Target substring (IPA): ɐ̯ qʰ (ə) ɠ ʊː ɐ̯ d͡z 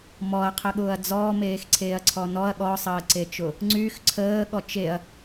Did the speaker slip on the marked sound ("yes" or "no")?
no